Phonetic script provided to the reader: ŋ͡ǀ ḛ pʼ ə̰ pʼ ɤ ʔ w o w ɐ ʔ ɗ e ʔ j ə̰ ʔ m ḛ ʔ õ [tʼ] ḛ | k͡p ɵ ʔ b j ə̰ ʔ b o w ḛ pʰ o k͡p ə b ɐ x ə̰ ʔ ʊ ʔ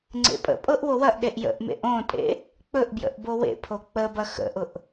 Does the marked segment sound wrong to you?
no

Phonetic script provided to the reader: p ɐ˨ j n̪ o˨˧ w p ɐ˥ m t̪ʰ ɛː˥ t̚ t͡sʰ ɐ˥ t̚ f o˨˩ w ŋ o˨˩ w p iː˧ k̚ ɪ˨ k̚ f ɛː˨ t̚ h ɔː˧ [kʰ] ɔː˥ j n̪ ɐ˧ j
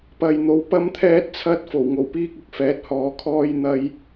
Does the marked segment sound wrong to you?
no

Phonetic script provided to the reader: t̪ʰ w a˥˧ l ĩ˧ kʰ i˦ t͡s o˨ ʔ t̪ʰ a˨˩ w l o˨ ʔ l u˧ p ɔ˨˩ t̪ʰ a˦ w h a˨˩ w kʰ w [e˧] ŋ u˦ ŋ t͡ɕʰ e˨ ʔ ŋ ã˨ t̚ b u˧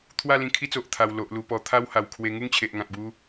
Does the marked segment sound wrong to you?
no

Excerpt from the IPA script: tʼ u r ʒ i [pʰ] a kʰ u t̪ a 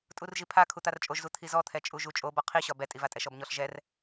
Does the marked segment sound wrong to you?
no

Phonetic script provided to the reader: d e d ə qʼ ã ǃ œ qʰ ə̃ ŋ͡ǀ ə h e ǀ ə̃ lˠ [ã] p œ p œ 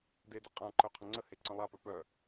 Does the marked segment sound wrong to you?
yes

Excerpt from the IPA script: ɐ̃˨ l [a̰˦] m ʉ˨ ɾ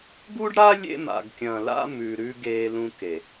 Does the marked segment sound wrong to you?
no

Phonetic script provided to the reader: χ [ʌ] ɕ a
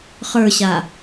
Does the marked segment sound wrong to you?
yes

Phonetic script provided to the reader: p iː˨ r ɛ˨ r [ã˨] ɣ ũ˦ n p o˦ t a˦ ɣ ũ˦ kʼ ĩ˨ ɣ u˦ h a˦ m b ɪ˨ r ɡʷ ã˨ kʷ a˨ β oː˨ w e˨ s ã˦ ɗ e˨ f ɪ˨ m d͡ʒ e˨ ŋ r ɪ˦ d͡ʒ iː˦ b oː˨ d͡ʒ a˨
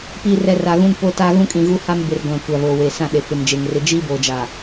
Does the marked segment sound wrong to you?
yes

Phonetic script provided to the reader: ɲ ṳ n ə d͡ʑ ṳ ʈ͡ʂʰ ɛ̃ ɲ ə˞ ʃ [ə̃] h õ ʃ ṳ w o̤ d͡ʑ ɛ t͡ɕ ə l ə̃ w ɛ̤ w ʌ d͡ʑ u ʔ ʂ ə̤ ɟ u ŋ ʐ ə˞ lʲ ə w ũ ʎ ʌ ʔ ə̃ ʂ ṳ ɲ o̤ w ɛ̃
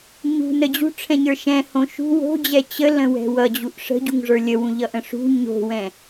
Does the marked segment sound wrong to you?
yes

